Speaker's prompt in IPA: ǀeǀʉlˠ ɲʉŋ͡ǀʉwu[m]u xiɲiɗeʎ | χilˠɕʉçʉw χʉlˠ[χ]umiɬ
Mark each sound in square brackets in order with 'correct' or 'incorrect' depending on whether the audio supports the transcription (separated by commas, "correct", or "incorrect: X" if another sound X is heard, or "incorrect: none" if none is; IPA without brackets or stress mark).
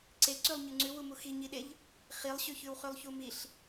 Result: correct, incorrect: ç